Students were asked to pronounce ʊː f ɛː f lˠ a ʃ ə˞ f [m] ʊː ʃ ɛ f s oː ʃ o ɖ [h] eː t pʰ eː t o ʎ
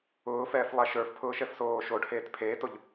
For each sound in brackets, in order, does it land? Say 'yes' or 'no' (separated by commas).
no, yes